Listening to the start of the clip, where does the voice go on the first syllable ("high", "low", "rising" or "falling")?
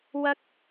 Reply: high